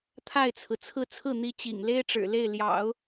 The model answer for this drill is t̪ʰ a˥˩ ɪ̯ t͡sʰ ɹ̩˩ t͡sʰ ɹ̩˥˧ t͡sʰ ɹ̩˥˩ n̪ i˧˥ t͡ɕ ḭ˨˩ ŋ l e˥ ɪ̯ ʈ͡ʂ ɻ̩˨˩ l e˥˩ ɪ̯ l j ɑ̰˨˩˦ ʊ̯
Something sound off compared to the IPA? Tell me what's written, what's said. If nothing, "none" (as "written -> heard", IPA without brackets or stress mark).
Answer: none